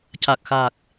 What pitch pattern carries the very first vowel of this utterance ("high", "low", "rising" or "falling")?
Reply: low